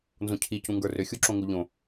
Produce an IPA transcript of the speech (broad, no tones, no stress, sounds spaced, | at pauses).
n z õ cʰ i c ũ ŋ ɡ ə˞ r ʏ xʲ u ǁ õ ŋ u ʎ õ